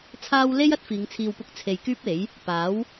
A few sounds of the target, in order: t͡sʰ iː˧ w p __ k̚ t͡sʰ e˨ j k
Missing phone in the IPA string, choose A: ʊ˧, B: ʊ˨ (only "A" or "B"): A